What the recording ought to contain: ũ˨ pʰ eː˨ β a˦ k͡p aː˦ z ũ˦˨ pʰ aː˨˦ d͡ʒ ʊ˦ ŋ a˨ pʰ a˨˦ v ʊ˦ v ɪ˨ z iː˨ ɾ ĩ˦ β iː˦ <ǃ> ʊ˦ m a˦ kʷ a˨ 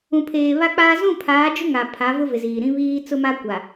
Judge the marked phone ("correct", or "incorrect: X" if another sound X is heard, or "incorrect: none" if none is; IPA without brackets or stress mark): incorrect: t͡s